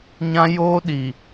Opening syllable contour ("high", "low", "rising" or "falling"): high